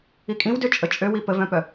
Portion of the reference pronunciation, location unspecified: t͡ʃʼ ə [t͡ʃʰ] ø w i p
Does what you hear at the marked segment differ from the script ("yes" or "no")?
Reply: yes